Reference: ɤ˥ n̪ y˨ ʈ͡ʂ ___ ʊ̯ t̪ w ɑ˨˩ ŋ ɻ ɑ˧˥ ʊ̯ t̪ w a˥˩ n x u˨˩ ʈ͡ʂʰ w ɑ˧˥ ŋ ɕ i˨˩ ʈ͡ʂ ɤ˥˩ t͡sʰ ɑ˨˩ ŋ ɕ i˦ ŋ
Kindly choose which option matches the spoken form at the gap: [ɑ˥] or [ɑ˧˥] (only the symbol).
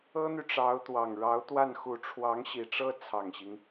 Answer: ɑ˧˥